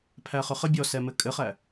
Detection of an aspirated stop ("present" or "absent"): present